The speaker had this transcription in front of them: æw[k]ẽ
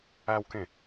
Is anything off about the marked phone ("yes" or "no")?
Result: no